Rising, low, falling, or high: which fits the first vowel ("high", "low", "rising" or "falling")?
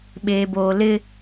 low